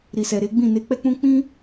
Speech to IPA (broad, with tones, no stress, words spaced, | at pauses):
ɾi˨sɛ˨ɾe˨˦ɡ͡bĩ˦˨ ne˧k͡pɛ˦k͡pũ˦ k͡pĩ˦